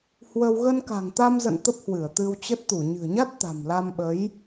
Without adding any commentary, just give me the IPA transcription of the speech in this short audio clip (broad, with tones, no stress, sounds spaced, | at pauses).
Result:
h w ə˧ w ɣ ə˧ n k a̤˨˩ ŋ t̪ a˧ m z ə̰˧˨ n t̪ ə˦˥ p̚ h w ɨ˧˩ ə̯ t̪ ɨ˧ w t͡ɕ ə˦˥ t̚ t̪ u˧˩ ɲ ɨ̤˨˩ ə̯ ɲ a˦˥ t̚ t̪ a̤˨˩ m l a˧ m ɓ ə˨˦ j